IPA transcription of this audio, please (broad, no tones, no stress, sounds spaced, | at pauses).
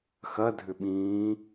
x ɐ dʱ ʏ ɓ ĩː